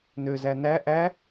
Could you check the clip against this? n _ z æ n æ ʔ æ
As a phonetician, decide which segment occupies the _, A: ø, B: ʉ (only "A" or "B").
A